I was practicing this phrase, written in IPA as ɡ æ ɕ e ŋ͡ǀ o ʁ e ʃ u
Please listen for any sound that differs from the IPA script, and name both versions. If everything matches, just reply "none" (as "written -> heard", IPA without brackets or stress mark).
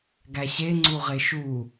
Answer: o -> u